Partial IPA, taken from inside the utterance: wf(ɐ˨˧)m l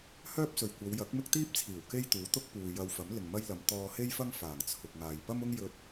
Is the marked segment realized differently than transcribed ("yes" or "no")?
yes